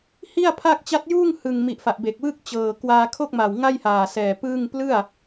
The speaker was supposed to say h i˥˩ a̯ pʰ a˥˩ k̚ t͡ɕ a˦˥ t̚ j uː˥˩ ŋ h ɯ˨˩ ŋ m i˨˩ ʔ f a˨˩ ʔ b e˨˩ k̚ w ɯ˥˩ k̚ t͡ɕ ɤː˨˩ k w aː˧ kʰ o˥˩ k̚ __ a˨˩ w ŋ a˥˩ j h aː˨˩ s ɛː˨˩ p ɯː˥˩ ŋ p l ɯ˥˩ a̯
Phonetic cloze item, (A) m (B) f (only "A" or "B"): A